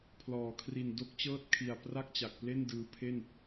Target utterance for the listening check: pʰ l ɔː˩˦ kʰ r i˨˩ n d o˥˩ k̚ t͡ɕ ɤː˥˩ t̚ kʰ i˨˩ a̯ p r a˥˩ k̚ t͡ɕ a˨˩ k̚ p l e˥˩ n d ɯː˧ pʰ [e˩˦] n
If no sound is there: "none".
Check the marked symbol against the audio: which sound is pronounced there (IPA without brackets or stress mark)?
e˥˩